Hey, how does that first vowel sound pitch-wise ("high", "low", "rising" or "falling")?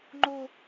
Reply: high